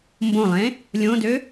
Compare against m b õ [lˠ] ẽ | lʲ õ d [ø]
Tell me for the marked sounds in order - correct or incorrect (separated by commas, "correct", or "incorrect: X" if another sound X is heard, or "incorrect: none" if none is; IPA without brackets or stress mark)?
correct, correct